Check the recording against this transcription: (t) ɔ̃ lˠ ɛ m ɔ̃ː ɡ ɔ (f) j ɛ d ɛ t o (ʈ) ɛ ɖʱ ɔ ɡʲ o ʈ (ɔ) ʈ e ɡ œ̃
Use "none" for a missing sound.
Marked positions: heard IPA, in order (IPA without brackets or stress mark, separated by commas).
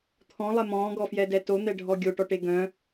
t̪ʰ, f, n̪, ɔ